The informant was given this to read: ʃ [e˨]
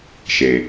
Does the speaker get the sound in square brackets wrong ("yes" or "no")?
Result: no